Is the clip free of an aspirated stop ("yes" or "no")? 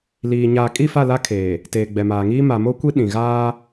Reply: no